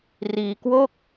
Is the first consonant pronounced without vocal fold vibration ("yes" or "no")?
no